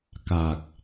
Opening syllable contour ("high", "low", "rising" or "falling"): low